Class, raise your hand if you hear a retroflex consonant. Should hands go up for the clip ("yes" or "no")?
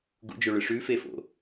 yes